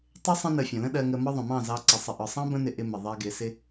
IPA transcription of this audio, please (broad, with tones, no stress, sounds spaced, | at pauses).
tˤ ɪ˦ sˤ ə̃˧ n ə˨ fʲ ə̃˨ l ə̃˦ ɗ ɜ˧ ŋ ə˧ m ɒ˦ ðˤ ə̃˨ m ɑ̃˦˨ z ɑ˧ ǀ ɪ˨ sˤ ə˨ ʔ ɒ˨ sˤ ɑ̃˦ b ə̃˦ n ɪ˧ ʔ ɪ˧ m ɪ˨ ðˤ ɜ˧ ɡ ɪ˨˦ s ɪ˦